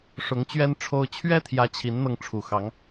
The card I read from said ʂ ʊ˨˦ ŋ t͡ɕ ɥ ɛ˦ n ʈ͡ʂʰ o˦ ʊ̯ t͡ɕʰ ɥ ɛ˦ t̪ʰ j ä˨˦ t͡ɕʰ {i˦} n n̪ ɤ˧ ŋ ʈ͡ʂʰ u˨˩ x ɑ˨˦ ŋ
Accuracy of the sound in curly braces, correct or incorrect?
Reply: incorrect